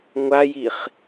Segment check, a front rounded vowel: absent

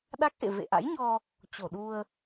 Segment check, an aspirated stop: absent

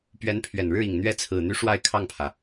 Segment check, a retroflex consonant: present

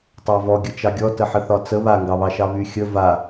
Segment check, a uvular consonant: absent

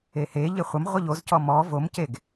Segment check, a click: absent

